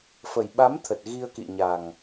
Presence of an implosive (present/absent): present